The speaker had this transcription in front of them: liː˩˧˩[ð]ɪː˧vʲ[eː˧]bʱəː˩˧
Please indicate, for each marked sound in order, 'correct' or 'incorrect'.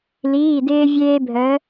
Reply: incorrect: d, correct

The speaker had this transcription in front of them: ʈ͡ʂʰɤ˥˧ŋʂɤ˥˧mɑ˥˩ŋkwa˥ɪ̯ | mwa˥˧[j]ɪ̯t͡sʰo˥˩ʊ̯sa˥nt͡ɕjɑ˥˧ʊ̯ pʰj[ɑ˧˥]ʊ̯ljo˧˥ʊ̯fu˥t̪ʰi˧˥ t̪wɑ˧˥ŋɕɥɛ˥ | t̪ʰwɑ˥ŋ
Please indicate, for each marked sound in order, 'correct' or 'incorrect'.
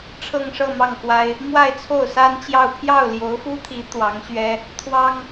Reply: incorrect: none, incorrect: ɑ˥˩

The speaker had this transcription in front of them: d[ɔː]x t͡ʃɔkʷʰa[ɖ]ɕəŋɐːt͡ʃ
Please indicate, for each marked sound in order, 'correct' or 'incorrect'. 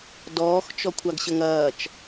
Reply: correct, incorrect: ɡ

